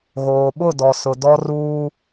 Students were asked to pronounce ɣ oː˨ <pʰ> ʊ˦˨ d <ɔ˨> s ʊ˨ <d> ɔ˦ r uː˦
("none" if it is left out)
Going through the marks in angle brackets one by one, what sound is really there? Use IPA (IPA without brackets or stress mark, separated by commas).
ɓ, ɔ˨, d